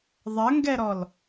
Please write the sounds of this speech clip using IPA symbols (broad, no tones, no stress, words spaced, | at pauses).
ðˤɐŋɡɛɾɔl